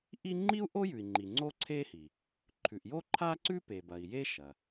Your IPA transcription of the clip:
ʔ i˥ ŋ͡ǃ i˥ u̯ ʔ o˥ j ʉ˩ i̯ ŋ͡ǃ i˩ ŋ͡ǀ o˥ ǀʰ e˥ h i˩ | ǃʰ ʉ˩ ʔ j o˥ ǃʰ a˥ ǀ ʉ˥ p e˩ b ɐ˩ i̯ j e˥ ʃ ɐ˩

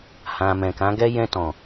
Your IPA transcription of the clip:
h ã˨ m ɛ̃˨ k ã˨˦ ɡ ɛ˦ j ɛ̃˧ t ɔ̃˨

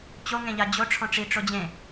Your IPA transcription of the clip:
t͡ɕ o ŋ ẽ ʎ a d͡ʑ o ʈ͡ʂʰ ɔ̃ ʈ͡ʂ i ʈ͡ʂ o d͡ʑ ẽ

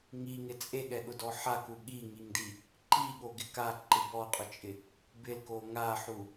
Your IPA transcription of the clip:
ŋ i ŋ ɪ t͡sʼ e ɠ ɛ ɠ ʊ d ɔ ħ a k u ɠ i ŋ i ŋ d i | ǃ i ɠ o ɡ ɪ k a ǃ ɪ b ɔ qʼ ʊ t͡ʃʼ ɪ | b ɪ l k o ŋ a ħ u

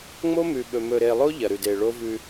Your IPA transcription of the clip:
ŋ͡m o˦ m ʉ˨ ɓ ɵ˨ m ɵ˨ ɾ e˨ lˠ o˦ ʎ ɐ˨ ɾ ʉ˨ d e˨ ɭ o˦ v ʉ˦

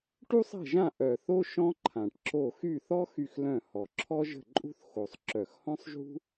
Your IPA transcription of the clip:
ʈ u˥ sˤ ɛ̤˥˩ ʒ ã˥˩ ʔ œ˨˩ θ o˥ ʃ ɔ̃˥ ǃʰ ã˨˩ ʈ ǁ o˥˩ x y˥˩ θ ɔ˥ x y˥˩ x l œ̃˥˩ h ɔ˨˩ ǁʰ ɔ˥ ʒ ə̤˥˩ ǃʼ ṳ˥ θ x o˨˩ sˤ ǁ œ˨˩ x h ɔ̃˥ sˤ ʒ ṳ˥

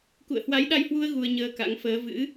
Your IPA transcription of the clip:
k ṵ˧˨ ə̯ h w a˨˦ j ɗ a˧ j h w u˧ ə̯ ɣ u˧ ə̯ ɲ əː˧ k a̰˧˥ ŋ f əː˨˦ v ɨ̰˧˥

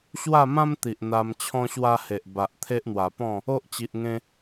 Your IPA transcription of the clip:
ɕ w a˥˧ m ã˦ m t̪ i˨ ʔ n̪ a˧ m t͡ɕʰ ɔ̃˦ ɕ w a˦ h e˨ ʔ b a˨ ʔ t̪ʰ e˦ ʔ n̪ w a˨˩ p ɔ̃˥˧ | o˦ ʔ t͡ɕ i˨ ʔ ŋ ẽ˧

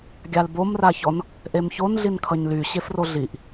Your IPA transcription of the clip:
ɡʲ a l b o m r a ç ɔ n | ʔ e m ç o n ɮ i n kʰ ʌ ɲ l y ɕ e f r o ɮ i ʔ

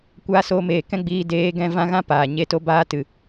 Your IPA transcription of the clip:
kʷ aː˧ s oː˧ m eː˨ k ɛ̃˦ ɡ͡b iː˧ d eː˨˦ ɡ ɛ̃˧ v ã˦ ɣ ã˦ p aː˨ ɲ e˧ t o˧ b aː˧ t ɨ˨

